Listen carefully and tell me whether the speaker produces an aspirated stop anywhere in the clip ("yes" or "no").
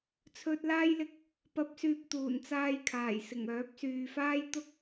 yes